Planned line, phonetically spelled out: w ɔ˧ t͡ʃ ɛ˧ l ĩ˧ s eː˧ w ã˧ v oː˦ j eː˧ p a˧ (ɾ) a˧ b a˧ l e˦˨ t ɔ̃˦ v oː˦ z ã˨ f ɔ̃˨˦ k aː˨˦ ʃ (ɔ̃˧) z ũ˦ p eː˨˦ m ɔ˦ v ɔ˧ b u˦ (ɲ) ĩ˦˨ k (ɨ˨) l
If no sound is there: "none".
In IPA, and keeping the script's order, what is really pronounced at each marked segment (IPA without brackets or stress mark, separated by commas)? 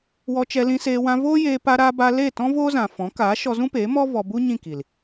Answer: ɾ, ɔ˧, ɲ, i˨